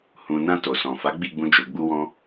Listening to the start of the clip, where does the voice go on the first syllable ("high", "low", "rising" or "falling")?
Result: low